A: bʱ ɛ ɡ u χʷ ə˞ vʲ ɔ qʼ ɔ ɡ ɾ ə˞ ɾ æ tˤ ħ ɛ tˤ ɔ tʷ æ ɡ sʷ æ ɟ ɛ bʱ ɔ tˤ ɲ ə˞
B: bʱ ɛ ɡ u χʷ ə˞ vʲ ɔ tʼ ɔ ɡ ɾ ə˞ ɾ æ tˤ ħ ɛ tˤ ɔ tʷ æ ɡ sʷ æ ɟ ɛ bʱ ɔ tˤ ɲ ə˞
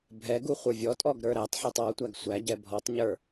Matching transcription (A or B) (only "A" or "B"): B